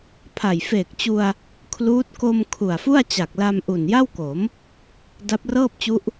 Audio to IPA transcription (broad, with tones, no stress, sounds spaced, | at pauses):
pʰ a˨˩ j f eː˨˩ k̚ t͡ɕ u˧ a̯ | kʰ l uː˦˥ t̚ k o˧ m kʰ u˨˩ a̯ f u˥˩ a̯ t͡ɕ a˨˩ k̚ l a˧ m ʔ u˨˩ n j a˥˩ w k o˩˦ m | d a˦˥ p̚ r ɤː˥˩ p̚ t͡ɕ u˦˥ ʔ